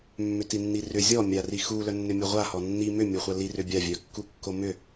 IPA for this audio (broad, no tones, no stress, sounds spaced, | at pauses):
mː ʏ t i nː i r ʏ zʲ ɔ mʲ a r i x u l œ nː ʏ mʲ o ʁʷ a h ɔ nː i m ʏ mʲ o χʷ a l i r ʏ bʲ a vʲ œ kː u kː o m ʏ